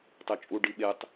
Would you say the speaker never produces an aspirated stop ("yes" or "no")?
yes